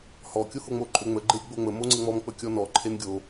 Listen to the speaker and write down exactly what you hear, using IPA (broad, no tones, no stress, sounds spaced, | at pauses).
h ɔ kʲ o h o ŋ͡m o ǃʼ ø ŋ͡m ə ɡ͡ǃ e ɾʲ ə ɡ͡b o ŋ͡m ə m o ŋ͡ǀ ə ŋ͡m ɔ m k͡p ə kʲ ɔ n ɔ ǃʰ e n ɡʲ o